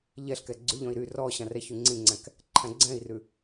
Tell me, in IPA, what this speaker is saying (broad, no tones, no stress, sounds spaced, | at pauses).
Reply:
ʎ ɛ ɬ k ɛ ɡ͡ǀ ʉ ʎ ɔ̃ i̯ ɾ y r ɔ ɕ ɑ̃ r ɛ ç y ŋ͡ǀ ĩ ŋ͡ǀ æ̃ k | ǃʰ æ̃ ɡ͡ǀ ɛ̃ i̯ r ʉ